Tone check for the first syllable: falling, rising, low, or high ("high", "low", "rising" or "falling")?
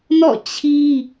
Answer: falling